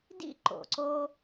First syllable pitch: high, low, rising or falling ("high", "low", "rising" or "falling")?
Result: high